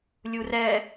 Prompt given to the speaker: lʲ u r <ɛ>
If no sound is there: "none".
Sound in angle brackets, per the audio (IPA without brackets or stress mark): ɛ